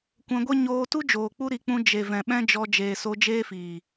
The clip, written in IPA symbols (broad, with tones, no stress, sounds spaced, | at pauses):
kʷ ɛ̃˧ ɡʷ e˦ ɲ oː˧ t u˦ d͡ʒ oː˨ k͡p u˦ ɾ i˨˦ k͡p ũ˧ d͡ʒ e˨ v ɛ̃˨ ɓ ɛ̃˦ d͡ʒ ɔ˧ d͡ʒ eː˨ s o˧ d͡ʒ eː˦ f iː˨